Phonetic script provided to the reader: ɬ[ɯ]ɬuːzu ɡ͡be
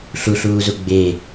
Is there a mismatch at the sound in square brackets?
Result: yes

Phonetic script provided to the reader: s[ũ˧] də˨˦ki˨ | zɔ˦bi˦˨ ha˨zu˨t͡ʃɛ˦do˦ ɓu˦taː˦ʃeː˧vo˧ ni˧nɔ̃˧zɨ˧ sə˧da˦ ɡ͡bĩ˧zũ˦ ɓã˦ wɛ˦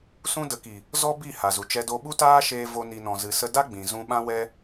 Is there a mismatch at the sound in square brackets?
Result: yes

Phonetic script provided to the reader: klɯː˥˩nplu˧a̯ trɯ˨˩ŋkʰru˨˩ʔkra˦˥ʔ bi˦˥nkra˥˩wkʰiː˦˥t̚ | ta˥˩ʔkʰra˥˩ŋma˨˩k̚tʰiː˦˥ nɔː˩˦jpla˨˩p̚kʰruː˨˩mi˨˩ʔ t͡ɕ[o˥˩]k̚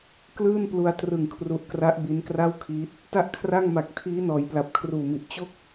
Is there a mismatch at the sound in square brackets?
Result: no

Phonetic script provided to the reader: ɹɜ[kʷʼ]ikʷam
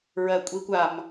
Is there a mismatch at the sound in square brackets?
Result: no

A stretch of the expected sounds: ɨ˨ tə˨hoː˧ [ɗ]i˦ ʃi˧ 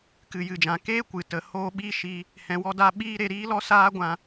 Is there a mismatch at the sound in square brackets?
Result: yes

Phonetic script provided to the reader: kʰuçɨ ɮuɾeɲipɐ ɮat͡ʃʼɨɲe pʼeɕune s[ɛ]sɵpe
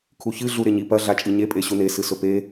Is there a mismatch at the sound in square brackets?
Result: yes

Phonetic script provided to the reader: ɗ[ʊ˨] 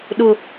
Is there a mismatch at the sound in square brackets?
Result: no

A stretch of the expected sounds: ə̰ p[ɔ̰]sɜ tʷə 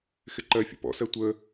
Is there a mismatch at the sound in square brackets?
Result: no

